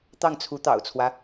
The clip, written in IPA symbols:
t̪ ɑ˥˩ ŋ t͡sʰ u˧˥ t̪ ɑ̰˨˩ ʊ̯ t͡sʰ w ä˦

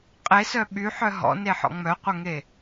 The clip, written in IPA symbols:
qʼ e s œ ɓ y ħ œ ɦ ɔ̰ n e ħ ɔ̰ ŋ͡m œ qʷ ɐ ŋ e

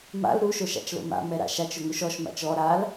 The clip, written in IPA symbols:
m a̰ l ɾ u ʃ o ʃ a̰ t͡ʃ l o̰ m a̰ m ɛ ɾ a̰ ʃ a t͡ʃ ʊ ŋ u ʃ ɔ ʃ m a̰ t͡ʃ ɔ ɾ a l

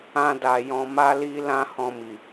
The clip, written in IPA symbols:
ã˧ d a˨ j ɔ̃˧ m a˦ l i˦ l ã˦ h ɔ̃˧ m i˨

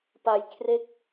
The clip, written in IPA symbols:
p a˧ j kʰ r e˦˥ k̚

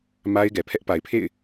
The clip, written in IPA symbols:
m a˦ ɪ̯ ɡ ɛ˨ pʰ ɛ˦ ʔ p a˨ ɪ̯ pʰ ḛ˦˨ ɪ̯

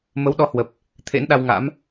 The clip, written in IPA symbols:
m ə˨˦ w ɗ ɔ˨˦ h w ə˨˩ p̚ | t̪ʰ ḛ˧˥ n ɗ a˧ w ŋ a̰˧˥ m

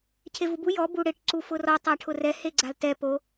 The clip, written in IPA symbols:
cʰ e v u b u j ɔ b u ɽ ɪ ʈ ǀ u f ʊ r ɔ tˤ a ʈʰ ʊ r ɛ h e ɡ͡ǀ a l t ɛ p o

